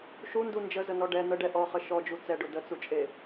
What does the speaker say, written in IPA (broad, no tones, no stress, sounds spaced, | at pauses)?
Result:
ʃ u n d u n d͡ʒ ə z ə n ɔ ɖ ɛ n̪ ə ɖ ɛ ʔ ɔ χ ə ʃ ɔ d͡ʒ u t͡s ɛ ɖ ʊ d ə t͡s u t͡ʃʼ e